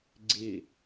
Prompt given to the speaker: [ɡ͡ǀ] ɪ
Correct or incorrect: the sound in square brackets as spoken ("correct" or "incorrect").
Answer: correct